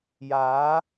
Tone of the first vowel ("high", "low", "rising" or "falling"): rising